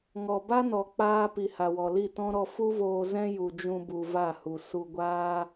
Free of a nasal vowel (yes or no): no